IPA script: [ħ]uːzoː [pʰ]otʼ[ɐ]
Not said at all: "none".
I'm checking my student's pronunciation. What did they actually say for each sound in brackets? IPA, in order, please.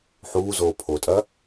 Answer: ħ, pʰ, ɐ

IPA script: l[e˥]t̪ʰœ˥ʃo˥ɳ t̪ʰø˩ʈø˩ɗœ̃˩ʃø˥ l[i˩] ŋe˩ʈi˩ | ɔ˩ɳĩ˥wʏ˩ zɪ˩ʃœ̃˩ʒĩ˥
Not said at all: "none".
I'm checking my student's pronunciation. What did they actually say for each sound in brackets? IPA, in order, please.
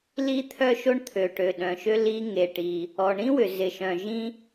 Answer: i˥, i˥

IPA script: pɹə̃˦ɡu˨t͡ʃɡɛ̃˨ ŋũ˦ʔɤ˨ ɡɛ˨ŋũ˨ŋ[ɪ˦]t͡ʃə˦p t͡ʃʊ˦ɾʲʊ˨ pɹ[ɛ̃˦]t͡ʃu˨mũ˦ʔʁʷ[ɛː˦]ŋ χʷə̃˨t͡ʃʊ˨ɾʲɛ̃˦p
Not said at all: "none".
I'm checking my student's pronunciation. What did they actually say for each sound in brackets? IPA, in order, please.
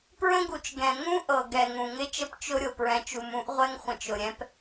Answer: ɪ˦, ɛ̃˨, ɛ˦

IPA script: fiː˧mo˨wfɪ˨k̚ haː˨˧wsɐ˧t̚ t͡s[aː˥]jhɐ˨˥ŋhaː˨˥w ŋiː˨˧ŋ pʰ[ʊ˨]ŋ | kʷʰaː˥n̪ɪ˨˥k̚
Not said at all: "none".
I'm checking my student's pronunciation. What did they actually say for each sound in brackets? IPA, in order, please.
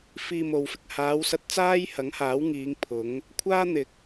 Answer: aː˥, ʊ˨˥

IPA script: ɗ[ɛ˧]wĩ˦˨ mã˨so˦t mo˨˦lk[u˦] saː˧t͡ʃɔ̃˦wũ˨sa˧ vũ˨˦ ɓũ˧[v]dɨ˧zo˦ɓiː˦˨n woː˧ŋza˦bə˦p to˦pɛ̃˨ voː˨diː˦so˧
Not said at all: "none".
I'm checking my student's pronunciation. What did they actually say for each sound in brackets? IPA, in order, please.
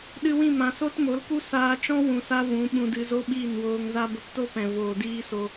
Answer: ɨ˧, u˦, none

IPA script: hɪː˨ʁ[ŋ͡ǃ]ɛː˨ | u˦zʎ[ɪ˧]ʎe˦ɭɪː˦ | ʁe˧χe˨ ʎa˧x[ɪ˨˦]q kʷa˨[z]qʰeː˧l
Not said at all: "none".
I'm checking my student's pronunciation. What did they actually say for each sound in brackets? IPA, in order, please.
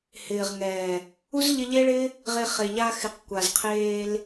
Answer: ŋ, ɪ˧, ɪ˨˦, z

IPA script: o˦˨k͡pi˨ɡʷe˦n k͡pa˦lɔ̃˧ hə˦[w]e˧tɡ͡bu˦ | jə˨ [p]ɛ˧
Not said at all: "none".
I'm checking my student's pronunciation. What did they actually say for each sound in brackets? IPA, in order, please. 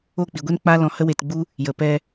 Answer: w, p

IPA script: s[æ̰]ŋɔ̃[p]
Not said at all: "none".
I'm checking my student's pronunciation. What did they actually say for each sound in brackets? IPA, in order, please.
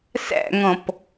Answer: æ̰, p

